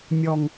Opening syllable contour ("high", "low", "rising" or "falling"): low